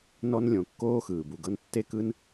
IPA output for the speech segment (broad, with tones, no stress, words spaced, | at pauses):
nɔ˧nlʲõ˩ kːoː˧ xɯː˩bu˩ɡɤ˧n tːe˧ kɯ˧n